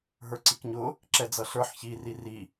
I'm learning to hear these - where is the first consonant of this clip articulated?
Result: throat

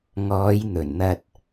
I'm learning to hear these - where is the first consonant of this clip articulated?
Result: velum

